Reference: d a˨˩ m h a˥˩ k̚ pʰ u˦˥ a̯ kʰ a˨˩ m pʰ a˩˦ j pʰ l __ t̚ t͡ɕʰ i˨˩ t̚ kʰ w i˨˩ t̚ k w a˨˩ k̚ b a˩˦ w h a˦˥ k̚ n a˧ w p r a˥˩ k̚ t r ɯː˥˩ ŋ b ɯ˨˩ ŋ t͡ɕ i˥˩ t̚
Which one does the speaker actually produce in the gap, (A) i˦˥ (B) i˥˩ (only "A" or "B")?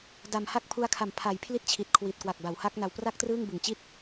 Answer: B